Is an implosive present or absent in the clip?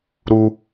absent